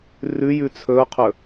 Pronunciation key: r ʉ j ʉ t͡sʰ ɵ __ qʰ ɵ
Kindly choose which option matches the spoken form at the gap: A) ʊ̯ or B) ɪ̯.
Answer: A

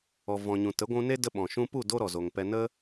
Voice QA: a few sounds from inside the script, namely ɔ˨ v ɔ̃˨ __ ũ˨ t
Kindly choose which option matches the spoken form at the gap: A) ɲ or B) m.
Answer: A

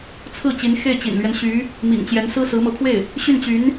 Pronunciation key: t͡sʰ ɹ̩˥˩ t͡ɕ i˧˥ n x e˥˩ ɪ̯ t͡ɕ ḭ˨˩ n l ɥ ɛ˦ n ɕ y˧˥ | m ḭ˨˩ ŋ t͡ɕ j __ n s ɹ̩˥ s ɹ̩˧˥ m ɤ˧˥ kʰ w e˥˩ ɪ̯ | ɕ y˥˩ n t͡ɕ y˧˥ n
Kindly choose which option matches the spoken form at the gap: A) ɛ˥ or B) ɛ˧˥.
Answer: B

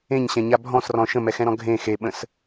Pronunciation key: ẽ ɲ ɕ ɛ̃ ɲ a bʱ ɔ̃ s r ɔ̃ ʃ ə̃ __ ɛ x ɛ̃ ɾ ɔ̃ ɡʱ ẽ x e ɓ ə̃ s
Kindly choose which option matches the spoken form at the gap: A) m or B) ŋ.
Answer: A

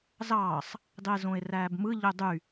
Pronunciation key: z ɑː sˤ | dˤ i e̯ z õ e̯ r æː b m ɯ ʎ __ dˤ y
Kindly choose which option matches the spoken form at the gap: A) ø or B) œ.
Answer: A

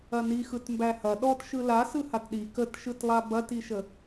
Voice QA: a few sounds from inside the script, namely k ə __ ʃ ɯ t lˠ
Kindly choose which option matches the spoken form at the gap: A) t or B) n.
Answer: A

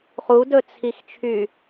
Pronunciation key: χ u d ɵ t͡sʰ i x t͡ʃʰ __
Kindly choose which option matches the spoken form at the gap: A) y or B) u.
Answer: A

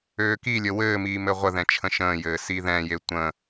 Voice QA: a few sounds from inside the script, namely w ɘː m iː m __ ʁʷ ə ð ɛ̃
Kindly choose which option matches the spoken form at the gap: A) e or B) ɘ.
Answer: B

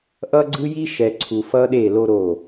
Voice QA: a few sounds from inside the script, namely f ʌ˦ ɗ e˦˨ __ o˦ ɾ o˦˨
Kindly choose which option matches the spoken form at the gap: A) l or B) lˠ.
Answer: A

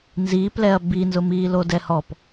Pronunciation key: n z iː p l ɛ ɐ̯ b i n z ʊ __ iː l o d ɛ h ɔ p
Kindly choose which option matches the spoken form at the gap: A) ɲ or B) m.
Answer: B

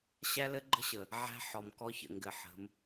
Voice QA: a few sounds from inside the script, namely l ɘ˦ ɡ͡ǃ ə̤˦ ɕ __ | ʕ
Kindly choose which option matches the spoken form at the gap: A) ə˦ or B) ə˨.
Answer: B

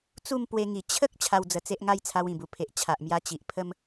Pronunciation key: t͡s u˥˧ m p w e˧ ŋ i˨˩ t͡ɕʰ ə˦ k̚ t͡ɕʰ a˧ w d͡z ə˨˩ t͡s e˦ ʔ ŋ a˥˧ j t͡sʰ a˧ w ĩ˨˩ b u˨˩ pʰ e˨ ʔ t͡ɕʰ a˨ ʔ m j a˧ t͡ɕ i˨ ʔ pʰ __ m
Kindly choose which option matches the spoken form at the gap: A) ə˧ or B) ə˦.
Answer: B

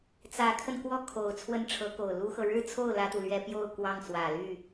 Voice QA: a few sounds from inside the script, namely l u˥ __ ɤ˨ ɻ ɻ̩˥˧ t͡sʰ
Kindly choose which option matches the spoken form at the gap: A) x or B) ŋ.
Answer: A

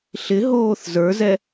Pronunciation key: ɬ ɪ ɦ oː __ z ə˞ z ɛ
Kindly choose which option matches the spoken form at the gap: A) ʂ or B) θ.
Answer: B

